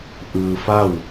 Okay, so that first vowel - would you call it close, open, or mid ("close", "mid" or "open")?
close